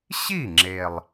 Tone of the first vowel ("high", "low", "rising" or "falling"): falling